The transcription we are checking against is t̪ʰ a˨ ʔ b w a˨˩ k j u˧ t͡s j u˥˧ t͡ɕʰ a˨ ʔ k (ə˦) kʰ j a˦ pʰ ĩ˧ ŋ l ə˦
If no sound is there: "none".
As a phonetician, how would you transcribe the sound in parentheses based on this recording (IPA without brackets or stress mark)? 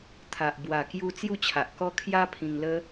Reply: ɔ˦